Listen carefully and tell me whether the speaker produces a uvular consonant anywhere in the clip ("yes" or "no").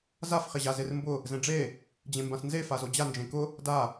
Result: yes